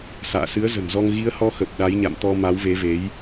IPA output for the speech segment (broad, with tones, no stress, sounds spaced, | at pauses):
s a̰ː˧˨ s ɨ˨˦ ə̯ z ə̤˨˩ n z ɔ˧ ŋ ɣ i˨˦ ə̯ h ɔ˨˦ x ə˨˩ p̚ ɗ a˨˦ j ɲ a̰˧˨ m t̪ ɔ˧ m a˨˦ w v e˨˦ v e˨˦ j